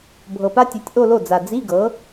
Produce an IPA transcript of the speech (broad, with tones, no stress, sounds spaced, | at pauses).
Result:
bʱ ɤ˨˩ p a˥ tʲ e˩˥ tʲ ʔ o˥˧ l o˥˩ d͡z a˨˩ d͡z i˧˥˧ ɡ ɤ˩˥